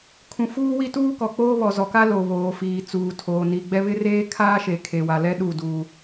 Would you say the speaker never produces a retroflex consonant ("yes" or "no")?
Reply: yes